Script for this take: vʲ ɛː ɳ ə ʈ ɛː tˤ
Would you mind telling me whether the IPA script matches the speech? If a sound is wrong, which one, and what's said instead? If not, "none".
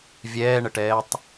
none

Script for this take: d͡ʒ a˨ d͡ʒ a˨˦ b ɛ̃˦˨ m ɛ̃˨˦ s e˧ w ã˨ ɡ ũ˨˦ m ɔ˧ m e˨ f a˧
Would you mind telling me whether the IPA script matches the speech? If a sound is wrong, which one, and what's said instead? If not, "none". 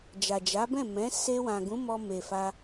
none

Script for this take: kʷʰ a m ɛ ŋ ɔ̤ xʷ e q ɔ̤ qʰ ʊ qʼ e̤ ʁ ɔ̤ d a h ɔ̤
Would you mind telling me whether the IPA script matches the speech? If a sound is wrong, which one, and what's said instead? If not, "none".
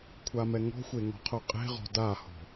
q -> ŋ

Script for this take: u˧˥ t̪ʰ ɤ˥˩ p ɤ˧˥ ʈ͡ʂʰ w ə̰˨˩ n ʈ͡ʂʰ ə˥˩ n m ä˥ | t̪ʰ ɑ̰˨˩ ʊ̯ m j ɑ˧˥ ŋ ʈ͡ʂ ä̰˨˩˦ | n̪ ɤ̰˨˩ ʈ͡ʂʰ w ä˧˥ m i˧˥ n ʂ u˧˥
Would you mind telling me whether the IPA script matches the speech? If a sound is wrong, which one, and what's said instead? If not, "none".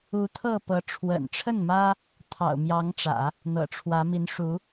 none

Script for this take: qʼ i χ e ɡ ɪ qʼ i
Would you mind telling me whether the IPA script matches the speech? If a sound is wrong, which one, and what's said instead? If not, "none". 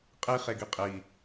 ɪ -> i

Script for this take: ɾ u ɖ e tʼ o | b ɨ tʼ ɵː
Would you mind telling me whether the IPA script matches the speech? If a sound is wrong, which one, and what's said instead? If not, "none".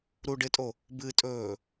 none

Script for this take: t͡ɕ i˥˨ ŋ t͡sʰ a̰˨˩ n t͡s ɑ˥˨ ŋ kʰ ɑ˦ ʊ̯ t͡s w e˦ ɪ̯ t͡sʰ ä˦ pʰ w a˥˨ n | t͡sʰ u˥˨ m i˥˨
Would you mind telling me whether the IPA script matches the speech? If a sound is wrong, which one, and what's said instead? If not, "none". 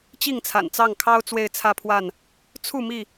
none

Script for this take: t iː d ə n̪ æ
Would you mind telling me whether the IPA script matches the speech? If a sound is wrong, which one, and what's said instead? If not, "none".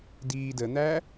t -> d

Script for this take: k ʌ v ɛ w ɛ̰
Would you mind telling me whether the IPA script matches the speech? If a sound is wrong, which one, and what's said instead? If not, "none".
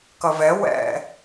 none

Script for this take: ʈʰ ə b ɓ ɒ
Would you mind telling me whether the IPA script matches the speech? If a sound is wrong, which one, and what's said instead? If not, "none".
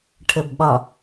none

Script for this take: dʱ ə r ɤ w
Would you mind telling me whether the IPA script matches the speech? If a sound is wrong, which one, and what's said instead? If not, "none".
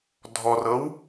ə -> ɔ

